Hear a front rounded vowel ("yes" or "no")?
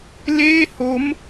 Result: no